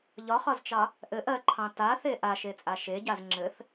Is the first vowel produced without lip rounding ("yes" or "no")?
no